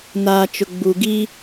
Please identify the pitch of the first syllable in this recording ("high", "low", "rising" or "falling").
low